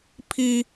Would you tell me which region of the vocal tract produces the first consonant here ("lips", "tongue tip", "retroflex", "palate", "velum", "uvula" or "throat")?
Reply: lips